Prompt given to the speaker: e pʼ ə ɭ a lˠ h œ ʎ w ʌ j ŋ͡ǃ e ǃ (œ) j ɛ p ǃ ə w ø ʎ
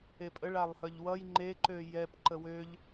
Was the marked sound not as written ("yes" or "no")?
yes